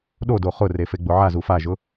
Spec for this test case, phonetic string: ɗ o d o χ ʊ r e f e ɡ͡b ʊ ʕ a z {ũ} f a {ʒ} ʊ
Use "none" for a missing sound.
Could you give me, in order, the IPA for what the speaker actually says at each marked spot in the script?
u, ʒ

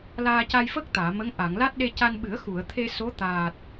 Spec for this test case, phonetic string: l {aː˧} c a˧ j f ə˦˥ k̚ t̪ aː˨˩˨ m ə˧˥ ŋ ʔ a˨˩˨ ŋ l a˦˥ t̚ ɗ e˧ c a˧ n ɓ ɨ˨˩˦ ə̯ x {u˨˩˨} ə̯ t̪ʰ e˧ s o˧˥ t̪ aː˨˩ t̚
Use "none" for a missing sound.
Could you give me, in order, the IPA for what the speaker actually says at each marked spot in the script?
aː˧, u˨˩˨

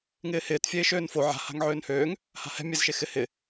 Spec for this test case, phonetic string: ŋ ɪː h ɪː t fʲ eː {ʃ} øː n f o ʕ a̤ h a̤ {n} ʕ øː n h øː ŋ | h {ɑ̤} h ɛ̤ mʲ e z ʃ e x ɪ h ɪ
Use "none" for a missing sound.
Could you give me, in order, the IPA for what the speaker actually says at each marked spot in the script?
ʃ, ŋ, a̤

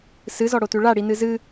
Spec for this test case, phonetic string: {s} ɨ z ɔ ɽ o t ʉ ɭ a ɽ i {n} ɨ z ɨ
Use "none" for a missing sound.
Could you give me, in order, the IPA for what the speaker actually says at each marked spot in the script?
s, n

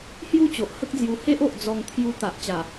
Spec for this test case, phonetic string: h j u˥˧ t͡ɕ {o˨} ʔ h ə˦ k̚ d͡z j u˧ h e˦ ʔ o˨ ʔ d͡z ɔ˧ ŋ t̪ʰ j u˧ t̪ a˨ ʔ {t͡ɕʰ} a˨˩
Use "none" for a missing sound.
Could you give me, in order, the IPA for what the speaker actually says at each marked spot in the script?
o˨, t͡ɕ

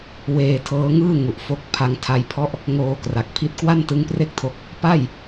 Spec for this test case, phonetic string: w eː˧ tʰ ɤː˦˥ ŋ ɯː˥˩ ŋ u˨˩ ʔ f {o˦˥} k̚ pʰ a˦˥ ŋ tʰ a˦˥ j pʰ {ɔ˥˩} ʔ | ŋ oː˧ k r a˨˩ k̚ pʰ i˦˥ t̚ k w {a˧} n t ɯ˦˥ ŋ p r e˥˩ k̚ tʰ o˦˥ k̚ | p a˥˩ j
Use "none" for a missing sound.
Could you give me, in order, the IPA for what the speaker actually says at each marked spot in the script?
o˦˥, ɔ˥˩, a˥˩

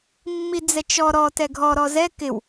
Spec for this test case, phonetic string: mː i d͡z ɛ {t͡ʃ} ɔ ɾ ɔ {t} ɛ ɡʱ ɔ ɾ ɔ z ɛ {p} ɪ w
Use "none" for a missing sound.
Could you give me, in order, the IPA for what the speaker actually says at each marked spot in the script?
t͡ʃ, t, k

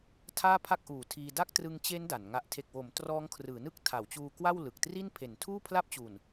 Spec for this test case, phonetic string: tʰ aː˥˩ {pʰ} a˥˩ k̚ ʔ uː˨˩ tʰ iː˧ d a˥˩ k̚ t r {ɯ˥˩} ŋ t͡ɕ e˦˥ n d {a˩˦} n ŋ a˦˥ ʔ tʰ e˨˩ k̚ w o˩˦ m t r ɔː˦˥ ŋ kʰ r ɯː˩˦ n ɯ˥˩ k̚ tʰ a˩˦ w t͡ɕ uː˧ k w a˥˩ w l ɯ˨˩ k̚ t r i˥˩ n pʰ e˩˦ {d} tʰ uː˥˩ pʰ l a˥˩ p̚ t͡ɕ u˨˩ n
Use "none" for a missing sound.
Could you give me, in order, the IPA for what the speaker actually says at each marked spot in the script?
pʰ, ɯ˧, a˩˦, n

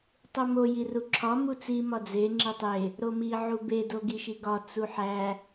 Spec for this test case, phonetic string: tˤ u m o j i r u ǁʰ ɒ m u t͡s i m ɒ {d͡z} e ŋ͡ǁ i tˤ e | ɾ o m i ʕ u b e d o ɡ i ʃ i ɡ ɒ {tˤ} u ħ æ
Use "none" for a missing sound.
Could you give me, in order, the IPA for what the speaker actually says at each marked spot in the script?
d͡z, t͡s

